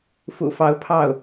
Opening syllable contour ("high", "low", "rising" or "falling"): low